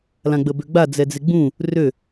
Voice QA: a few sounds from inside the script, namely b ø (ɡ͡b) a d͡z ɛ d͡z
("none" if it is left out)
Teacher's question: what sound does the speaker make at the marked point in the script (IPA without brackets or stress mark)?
ɡ͡b